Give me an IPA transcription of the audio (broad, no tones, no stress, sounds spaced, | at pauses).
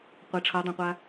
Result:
qʷ ʌ ʈ͡ʂʰ ʌ dˤ ẽ qʷ a